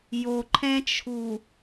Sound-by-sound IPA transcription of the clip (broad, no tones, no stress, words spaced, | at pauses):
joǃʰɛ̃t͡ʃʰu